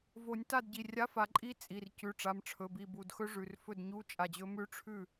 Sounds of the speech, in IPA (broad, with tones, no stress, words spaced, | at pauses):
vo˨˩˦nʲta˥˩d ɟi˩˧˩rʲa˧˥˧fa˨˩˦ǃʼi˦˥ t͡sʼi˩˧˩r cʉ˩˧˩ʈ͡ʂa˩˧˩mʈ͡ʂʰɵ˩˧˩ bi˧˩bu˩˧˩dxɵ˦˥ʐʉ˩˧˩r fɵ˥˩dɲu˧˥˧ t͡ʃʼa˧˩d͡ʑɵ˦˥ mʉ˦˥ ʈ͡ʂʰʉ˥˩